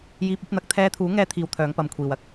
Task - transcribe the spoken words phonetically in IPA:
j iː˧ p̚ ɵ˨˥ t̚ n̪ ɐ˨˥ k̚ t̪ʰ ɛː˧ t̪ʰ uː˨˥ ŋ ɛː˧ t̪ʰ iː˧ w t̪ʰ œː˨˧ ŋ p ɐ˨˧ m kʷʰ iː˨ w ɐ˧ k̚

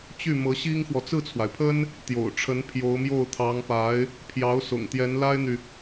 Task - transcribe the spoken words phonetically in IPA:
t͡ɕ y˥˩ m ɤ˧˥ ɕ i˥ ŋ x w ɔ˨ t͡s ɹ̩˥˩ t͡sʰ w a˩ ɪ̯ pʰ ə˥ n | t̪ j o̰˨˩ ʊ̯ ʈ͡ʂʰ ə˧˥ n pʰ j o˧˥ ʊ̯ m j o˥˩ ʊ̯ t̪ʰ ɑ˧˥ ŋ p a˧˥ ɪ̯ | pʰ j ɑ˧˥ ʊ̯ s ʊ̰˨˩ ŋ t̪ j ɛ˧˥ n l a˥ ɪ̯ n̪ y˨

